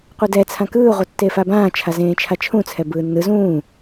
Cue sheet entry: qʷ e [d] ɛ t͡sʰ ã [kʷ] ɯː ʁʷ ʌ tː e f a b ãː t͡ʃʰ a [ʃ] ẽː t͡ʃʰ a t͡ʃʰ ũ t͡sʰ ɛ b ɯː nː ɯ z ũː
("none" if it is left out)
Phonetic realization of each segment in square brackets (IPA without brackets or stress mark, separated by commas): d, k, z